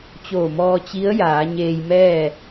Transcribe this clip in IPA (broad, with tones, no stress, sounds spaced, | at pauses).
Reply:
t͡ɕ oː˧˩ m ɔː˧ t͡ɕ i˧˥ ə̯ j aː˩˧ ɲ eː˧ j m ɛː˥˨